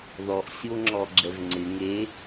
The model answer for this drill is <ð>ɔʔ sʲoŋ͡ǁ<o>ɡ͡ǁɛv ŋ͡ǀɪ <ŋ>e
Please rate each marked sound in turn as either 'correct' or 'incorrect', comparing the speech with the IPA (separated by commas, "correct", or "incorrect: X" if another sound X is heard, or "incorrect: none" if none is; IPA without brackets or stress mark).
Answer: correct, incorrect: ɔ, correct